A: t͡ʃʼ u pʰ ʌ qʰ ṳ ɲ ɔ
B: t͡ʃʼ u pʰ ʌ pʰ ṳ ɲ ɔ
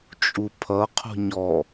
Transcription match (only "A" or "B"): A